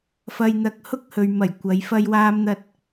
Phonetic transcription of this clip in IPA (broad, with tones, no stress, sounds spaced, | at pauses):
f ɐ˧ j n̪ ɐ˧ k̚ h ʊ˥ k̚ h ɵ˨ ɥ m ɐ˨˩ j kʷ ɐ˨˧ j f ɐ˧ j w aː˧ m n̪ ɐ˧ t̚